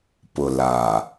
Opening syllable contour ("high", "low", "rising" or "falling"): low